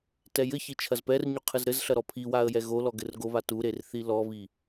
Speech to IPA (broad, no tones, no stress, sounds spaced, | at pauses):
t ɛ j ɘ ç i t͡ʃʰ ɐ z p ɛ r ɲ u qʰ ɨ z ɾ ɘ z ɬ ɐ ɾ ɔ pʰ i w a ə̯ j ɛ ɣ o l ɔ ɡ ɘ r ɡ o β a t u ɾ e r θ i l ɔ β i